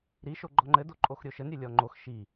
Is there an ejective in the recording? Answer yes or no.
yes